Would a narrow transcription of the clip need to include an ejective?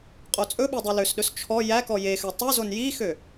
yes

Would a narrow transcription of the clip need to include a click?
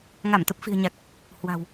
no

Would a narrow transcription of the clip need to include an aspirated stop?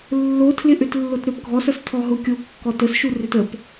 yes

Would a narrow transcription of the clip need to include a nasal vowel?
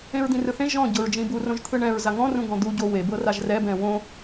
yes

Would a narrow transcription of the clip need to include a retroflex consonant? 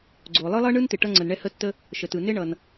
yes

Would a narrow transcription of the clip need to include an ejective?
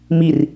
no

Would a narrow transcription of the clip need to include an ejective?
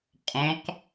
yes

